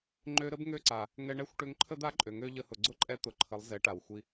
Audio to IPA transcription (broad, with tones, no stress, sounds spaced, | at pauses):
ŋ͡ǃ ø˧ ɾ ə˦ b ŋ ø˦ ǀ a˨ | ŋ ɛ˧ ɳ ɛ˦˨ xʷ ʈ ø˧ ŋ ǃʰ ə˦ d̪ a˦ ǃʼ ø˨ ŋ ø˧ ʎ ə˧ h ʊ˨ ɡ͡ǀ ʊ˦ ǃʼ ɛ˧ t̪ ʊ˨ ǃʰ ə˨˦ lˠ z ɛ˨˦ ʈ a˨ w xʷ i˧